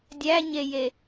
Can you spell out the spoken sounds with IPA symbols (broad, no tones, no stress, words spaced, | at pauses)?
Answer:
dʲæɲeje